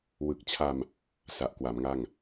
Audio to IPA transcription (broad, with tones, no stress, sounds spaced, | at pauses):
w ɯ˨˩ k̚ t͡ɕʰ a˧ m | s a˨˩ ʔ k w a˩˦ m ŋ a˥˩ ŋ